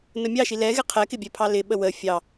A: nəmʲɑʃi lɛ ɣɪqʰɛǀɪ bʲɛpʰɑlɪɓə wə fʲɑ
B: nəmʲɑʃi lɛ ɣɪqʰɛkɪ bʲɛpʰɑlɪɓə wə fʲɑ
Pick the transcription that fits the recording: B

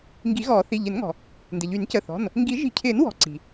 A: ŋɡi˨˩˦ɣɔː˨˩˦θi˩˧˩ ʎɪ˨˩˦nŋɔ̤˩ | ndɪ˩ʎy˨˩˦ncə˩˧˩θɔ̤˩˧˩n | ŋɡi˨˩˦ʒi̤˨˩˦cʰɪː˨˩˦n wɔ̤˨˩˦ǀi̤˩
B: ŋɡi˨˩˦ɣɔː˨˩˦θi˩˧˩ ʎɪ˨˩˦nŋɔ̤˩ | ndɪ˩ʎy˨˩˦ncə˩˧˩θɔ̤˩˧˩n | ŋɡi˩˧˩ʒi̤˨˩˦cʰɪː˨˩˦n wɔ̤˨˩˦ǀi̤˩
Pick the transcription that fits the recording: A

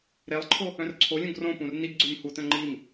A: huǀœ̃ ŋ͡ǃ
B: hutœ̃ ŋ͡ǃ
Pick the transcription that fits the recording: B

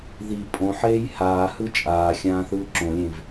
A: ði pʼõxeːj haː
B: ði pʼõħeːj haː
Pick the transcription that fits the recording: B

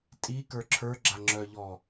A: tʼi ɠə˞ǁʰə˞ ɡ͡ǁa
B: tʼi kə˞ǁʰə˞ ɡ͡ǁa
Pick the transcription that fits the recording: B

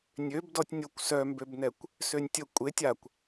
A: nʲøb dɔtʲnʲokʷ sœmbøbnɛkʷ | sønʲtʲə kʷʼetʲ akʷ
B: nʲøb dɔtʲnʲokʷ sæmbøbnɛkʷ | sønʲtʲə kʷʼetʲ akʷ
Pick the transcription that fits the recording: A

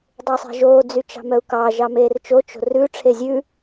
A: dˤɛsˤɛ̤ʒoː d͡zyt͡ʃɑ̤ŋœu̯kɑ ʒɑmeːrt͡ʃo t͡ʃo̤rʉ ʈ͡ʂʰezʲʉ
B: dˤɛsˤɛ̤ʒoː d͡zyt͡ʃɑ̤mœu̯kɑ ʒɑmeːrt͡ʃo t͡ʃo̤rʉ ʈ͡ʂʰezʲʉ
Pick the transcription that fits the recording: B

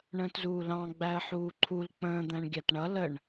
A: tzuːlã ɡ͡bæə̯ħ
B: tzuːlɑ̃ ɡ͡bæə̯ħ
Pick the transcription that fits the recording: B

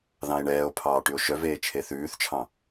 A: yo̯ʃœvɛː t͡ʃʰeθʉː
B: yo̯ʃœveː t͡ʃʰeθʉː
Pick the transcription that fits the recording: B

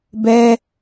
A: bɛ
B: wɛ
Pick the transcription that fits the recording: A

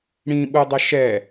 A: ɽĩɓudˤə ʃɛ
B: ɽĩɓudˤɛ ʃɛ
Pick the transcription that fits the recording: A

